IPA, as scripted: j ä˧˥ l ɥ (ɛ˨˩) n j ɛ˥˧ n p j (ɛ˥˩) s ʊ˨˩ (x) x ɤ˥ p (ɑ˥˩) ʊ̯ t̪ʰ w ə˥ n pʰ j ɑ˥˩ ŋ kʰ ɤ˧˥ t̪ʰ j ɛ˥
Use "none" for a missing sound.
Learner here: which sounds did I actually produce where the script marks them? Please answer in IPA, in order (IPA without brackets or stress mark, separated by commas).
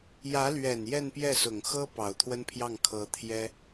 ɛ˨˩, ɛ˥˩, ŋ, ɑ˨˩